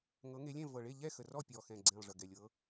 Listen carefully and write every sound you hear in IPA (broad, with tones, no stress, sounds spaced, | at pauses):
ŋ ɤ˨˦ ŋ e˨˦ lʲ ɛ̃˥˨ v ɤ˨˩ ɭ e˥˨ ʎ ɛ˥˨ x ə˨˩ r ɔ˥˨ pʲ ɔ˨˩ x ɛ̃˨˩ ɡ͡ǀ ẽ˨˩ lˠ ʐ ə˨˩ ɡ ɛ˨˩ lʲ ɤ˨˦